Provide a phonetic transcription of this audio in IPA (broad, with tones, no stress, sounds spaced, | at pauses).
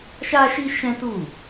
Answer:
ʃ a˦ ʃ i˦ ʃ ɛ̃˦ t u˦˨